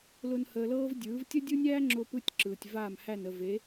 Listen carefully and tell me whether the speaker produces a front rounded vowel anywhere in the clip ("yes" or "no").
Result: no